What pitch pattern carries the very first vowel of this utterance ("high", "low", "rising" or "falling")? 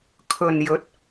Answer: low